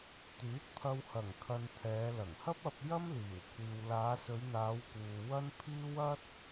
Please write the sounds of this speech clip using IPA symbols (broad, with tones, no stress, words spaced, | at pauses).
t̪yː˨˥t̚pʰɐ˧whɐ˨˩ŋ kʰɐ˧nt̪ʰɛː˨˧ lɐ˨˩ŋhɐ˥p̚ ɐ˧p̚ jɐ˥m liː˨˩wkʷʰiː˨w laː˨˧sɵ˨˧ɥn̪aː˨˧wkuː˨ wɐ˥npʰiː˥w ɐ˥t̚